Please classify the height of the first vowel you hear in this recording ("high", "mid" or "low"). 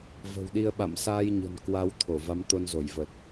mid